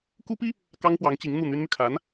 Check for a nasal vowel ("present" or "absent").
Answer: absent